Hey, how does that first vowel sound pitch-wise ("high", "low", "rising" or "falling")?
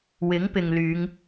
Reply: rising